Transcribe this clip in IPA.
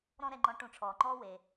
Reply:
ɾɔ̃˥ɾɛ˧ŋ͡ǃɔ̃˧˥ ʈũ˧ʈ͡ʂʰɔː˩ŋ͡ǃɔː˥weː˩

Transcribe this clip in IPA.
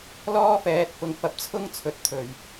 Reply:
lɔː˥fɛː˨t̚ pʊ˨ŋfɐ˨p̚t͡sʰʊ˥ŋ t͡sʰɵ˨t̚t̪ʰɵ˨˩ɥ

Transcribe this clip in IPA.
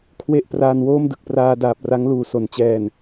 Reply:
kʰwe˥˩ʔ praː˧nwoː˥˩mdɯ˨˩k̚praː˧ daː˨˩p̚ra˦˥ŋluː˨˩ so˩˦nt͡ɕɛː˨˩n

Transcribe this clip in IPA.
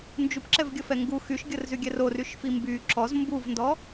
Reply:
nd͡ʒupǁɛvɡʲəfɛ ŋɡu xyʃɡʲərzyɡʲɛr oryʃfi mby ǁɔz mbuvndɔ

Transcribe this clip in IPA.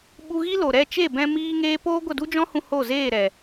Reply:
ɓu˧ɣi˦lo˨ ɾɛ˦˨t͡ʃe˦˨bɛ̃˧ miː˦ŋeː˦ poː˦ ɡʷə˦˨du˦d͡ʒɔ̃˦hũ˧ ho˦˨zeː˦˨ɾɛ˨

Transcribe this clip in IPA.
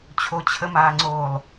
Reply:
t͡ɕʰot͡ɕʰəmaːŋ͡ǀoːlˠ

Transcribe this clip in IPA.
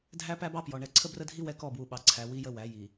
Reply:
dʱæ˦pæ˦bɑ˦pjɔ˨ ɳɛ˨ǀʰə˦brə˦dʱi˦ wɛ˦kɔ˦˨bwu˨ ɓɑ˨ǀʰæ˨ wi˦jə˦wæ˨˦ ji˨

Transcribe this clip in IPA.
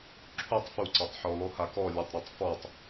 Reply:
ǁʰutˤ fuǀatˤħo lˠohakɔ lʲɔtˤɾotˤfɔtˤ

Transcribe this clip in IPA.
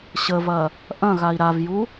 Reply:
ɕəvɐ | ʔɐ̃ɣai̯ ɾavju

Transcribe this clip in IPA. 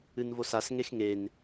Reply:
ɨnvosas ŋexŋen

